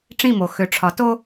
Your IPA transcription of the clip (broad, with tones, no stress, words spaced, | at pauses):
ʈ͡ʂĩ˦˨mo˨ xø˨ʈ͡ʂʰɒ˨˦to˦